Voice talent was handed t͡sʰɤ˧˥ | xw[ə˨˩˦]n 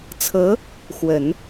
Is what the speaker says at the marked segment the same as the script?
yes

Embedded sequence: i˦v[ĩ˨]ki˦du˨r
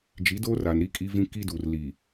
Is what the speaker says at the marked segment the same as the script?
no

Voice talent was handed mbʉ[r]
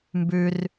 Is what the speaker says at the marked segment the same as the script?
yes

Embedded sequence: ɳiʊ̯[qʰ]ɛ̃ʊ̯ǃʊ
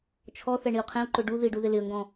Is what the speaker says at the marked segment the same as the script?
yes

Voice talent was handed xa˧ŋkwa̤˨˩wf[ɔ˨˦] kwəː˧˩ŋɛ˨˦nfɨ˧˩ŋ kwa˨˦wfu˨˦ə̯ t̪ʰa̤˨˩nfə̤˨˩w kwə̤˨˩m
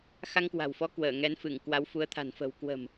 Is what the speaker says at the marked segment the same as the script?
yes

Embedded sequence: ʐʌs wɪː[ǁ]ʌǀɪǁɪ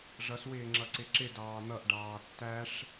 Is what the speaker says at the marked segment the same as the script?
no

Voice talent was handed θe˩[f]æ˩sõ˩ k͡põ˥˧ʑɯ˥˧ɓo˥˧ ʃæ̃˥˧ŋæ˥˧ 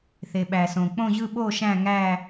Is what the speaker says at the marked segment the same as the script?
no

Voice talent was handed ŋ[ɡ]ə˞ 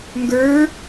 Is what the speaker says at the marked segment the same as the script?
yes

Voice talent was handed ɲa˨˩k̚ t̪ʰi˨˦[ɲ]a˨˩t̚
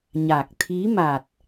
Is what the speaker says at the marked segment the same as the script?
no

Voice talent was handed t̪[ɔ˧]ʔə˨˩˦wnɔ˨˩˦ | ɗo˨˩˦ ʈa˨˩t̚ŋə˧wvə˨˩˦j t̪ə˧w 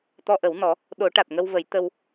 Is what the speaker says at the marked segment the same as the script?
yes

